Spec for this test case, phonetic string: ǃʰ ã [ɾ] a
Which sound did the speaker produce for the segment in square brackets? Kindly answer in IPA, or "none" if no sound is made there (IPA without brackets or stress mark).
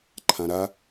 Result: ɾ